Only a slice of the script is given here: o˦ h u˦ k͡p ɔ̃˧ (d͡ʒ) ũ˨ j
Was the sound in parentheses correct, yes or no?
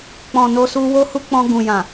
no